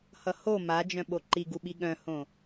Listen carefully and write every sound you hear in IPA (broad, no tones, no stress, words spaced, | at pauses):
hʌho mad͡ʒœ̃ ɓoǃi ɡuɓiɠœ̃hõ